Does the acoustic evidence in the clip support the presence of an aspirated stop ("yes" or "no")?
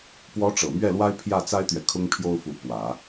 yes